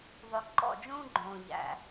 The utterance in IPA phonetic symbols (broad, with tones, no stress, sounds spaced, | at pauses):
ðˤ o˨ ǃ ɔ̰˦˨ d͡ʒ ũː˦ ɡ͡ǃ õː˨ ʎ æ̰˨